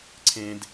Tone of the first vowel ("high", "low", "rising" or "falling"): low